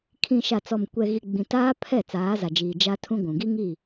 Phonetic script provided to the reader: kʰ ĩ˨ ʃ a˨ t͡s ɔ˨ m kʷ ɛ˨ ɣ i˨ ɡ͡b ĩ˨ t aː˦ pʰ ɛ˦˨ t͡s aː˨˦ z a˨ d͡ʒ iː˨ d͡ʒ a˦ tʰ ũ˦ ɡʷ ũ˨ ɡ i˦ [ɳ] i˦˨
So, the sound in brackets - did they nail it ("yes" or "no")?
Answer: no